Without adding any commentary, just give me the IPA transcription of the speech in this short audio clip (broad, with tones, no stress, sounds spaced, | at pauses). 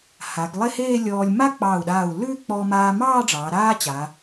h a˩˧ ɡ lˠ e˥˧ h eː˥˧ lʲ ɔː˧ lʲ m a˥ k͡p ɑː˧˩ u̯ ɗ aː˧˩ u̯ l ʉː˥˧ k͡p ɔ˧ m aː˧ m ɑː˥˧ ɖ͡ʐ ɑː˩˧ ɾ aː˥ t͡ɕ a˩˧